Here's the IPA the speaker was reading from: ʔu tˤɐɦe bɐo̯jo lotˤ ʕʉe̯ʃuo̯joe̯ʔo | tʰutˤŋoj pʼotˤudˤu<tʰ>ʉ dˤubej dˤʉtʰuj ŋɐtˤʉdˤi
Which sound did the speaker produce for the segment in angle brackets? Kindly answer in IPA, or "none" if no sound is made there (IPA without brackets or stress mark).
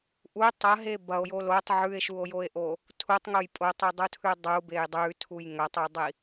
tʰ